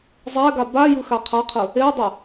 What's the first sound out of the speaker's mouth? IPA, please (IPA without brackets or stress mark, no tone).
zˤ